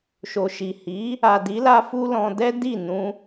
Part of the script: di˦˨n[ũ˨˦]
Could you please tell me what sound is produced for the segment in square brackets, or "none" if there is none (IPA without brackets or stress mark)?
ũ˧